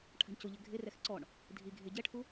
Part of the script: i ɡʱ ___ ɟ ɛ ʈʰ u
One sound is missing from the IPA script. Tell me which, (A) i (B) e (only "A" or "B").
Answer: B